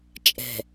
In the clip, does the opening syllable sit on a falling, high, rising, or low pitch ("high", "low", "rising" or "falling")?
low